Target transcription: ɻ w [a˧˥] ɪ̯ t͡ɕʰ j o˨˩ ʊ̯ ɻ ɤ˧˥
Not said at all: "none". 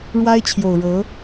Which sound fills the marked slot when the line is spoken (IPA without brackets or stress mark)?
a˥